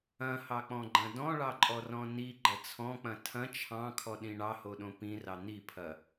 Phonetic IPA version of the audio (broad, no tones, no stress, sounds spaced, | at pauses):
ɐ̃ h ɑ k͡p ɔ̃ ɡ͡ǃ ɐ̃ d ɔ̃ ɭ ɑ ǃʼ ɔ r ɔ̃ n i ɡ͡ǃ ɐ t͡sʰ ɔ̃ k͡p ɐ̃ tʰ ɐ̃ t͡ʃʰ ɑ̃ kʰ ɔ ɗ ĩ ɳ ɑ h o ɗ õ p ĩ r ɑ n̪ i pʰ ɐ